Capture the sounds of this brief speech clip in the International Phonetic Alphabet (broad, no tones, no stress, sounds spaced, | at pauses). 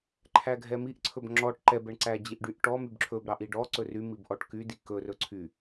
ǃʰ æ ɡʱ ɛ m i ʔ ǀʰ ɵ b ŋ͡ǁ ɔ ʈ ǃ ɛ b ɛ ɳ ǀ æ d͡ʑ i ʔ ɖ y ʔ ʈ ɔ m y b ǁʰ ɵ b ɾ ɑ ʔ i ɖ ɔ ǀ ɵ r y m i b ʔ ɔ ʈ k y d i k ɵ r ɵ ǀʰ y